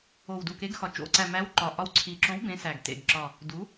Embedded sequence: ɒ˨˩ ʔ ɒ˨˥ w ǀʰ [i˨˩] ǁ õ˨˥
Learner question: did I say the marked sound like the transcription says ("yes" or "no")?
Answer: yes